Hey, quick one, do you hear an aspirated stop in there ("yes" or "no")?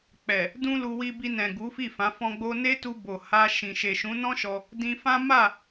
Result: no